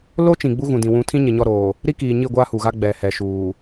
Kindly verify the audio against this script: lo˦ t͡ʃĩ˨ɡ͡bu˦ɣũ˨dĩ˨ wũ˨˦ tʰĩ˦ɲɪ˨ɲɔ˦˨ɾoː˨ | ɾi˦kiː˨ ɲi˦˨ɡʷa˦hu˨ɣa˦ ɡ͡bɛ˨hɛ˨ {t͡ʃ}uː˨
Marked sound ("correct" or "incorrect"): incorrect